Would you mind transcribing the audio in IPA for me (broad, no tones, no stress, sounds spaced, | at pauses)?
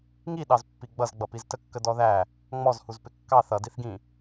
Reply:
ŋ i ɗ ɑ z pː i ɡ͡b ʌ z ɡ͡b ʌ p i z t ə kː ə d ɔ ð æ | ŋ͡m ɔ z h u z p ɪ kː ɑ θ ʌ d i θ ɡ ĩ